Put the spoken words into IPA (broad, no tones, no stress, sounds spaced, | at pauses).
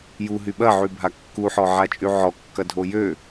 j u ɦ y ɓ ɐ ʕ y bʱ a kː u ħ ɔ ʕ a t͡ʃʼ y ʕ ɔ kː ɐ dʱ o j ø